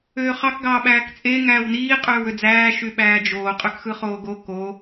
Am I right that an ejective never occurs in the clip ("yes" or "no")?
no